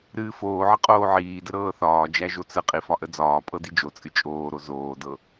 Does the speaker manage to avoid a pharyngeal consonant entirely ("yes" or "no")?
no